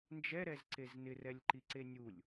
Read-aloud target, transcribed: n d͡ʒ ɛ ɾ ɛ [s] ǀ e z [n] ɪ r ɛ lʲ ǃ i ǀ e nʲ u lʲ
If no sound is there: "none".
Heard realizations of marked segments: z, n

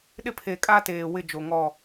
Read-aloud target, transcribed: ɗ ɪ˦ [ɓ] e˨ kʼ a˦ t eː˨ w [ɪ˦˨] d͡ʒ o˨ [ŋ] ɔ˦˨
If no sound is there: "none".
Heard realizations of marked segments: pʰ, ɪ˦˨, ŋ

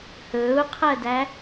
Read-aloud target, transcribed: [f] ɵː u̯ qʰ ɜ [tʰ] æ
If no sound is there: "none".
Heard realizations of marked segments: h, d

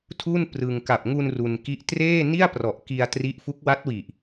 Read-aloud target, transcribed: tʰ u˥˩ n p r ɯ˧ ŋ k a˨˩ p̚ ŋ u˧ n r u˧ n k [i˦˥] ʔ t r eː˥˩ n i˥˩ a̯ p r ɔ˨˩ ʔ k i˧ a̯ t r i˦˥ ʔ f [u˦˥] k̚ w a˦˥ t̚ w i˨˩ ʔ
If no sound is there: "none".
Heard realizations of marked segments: i˦˥, u˦˥

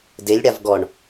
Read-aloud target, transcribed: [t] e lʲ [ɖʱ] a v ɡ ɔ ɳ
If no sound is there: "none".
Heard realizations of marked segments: d, ɽ

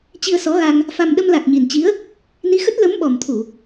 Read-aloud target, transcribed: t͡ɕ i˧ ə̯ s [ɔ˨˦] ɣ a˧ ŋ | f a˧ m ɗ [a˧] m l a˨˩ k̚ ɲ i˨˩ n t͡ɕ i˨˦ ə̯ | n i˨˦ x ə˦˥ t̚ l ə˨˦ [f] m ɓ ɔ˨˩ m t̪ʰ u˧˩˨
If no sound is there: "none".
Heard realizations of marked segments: ɔ˨˦, ə˧, none

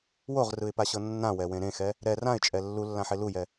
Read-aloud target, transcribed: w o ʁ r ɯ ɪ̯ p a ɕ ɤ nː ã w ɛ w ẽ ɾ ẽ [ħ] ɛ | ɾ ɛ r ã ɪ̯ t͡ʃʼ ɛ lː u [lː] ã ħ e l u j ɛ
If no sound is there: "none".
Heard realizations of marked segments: x, lː

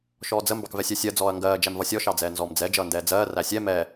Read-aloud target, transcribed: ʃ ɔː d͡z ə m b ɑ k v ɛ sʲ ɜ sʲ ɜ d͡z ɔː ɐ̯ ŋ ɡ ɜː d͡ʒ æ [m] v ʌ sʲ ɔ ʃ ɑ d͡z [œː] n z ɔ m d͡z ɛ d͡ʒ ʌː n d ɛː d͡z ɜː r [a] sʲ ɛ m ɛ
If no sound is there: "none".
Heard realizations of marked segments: m, ɛː, æ

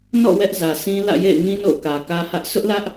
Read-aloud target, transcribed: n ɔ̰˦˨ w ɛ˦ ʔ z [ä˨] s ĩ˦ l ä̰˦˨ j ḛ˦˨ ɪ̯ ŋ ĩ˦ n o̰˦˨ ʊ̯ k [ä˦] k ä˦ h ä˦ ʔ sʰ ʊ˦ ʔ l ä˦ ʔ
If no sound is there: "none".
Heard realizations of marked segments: ä˨, ä˨

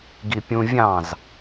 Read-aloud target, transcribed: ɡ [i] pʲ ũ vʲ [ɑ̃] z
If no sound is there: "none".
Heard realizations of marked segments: i, ɑ̃

